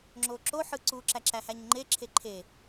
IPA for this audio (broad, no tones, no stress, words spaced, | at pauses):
ŋ͡ǁoǁoħɯ ǀuǁæ ǁæhæɲŋ͡ǃeǁʰe ǃʰe